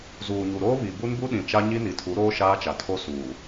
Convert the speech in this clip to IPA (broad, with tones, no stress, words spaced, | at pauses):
zuː˨ɲu˨ɾoː˦ βi˨ bu˦nbu˦ɗĩ˨ t͡ʃa˦ɲi˦ ni˨tʰu˨˦ɾoː˦ ʃaː˦t͡ʃa˨tʰo˦ suː˨